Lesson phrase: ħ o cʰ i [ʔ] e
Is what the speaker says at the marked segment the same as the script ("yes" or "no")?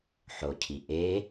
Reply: yes